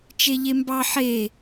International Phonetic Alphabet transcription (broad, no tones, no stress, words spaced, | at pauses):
t͡ʃeʎembɑ ħe